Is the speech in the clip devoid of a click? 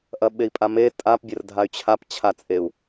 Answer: yes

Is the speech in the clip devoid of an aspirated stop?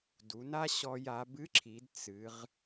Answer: no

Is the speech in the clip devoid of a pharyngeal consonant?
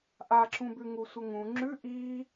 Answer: yes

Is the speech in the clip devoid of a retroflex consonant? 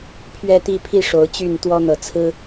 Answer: no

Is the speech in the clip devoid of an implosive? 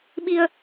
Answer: no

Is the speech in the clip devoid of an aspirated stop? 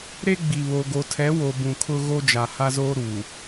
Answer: no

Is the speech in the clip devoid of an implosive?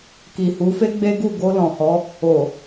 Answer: yes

